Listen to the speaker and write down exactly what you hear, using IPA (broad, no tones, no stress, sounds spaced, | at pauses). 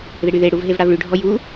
ð ɪ ɽ y ð e ɽ u v ɦ e v ɽ a v ɭ y ɖʱ ɔ j u